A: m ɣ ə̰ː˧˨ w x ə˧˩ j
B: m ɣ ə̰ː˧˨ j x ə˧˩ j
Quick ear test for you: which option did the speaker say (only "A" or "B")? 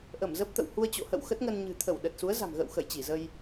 A